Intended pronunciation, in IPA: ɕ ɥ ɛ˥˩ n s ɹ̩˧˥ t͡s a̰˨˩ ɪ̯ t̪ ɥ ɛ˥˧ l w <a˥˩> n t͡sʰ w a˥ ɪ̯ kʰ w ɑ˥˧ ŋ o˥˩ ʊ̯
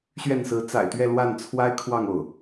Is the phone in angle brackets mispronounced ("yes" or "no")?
no